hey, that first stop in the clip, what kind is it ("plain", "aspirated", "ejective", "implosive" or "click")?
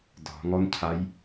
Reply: plain